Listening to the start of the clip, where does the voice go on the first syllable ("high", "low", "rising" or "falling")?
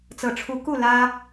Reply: low